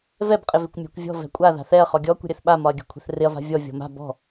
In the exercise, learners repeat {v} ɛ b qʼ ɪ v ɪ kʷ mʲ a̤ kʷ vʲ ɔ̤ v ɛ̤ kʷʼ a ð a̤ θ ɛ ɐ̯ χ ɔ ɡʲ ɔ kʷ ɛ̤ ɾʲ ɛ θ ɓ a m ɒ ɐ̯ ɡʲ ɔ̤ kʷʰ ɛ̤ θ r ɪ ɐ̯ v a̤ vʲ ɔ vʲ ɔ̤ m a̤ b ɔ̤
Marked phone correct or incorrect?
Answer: correct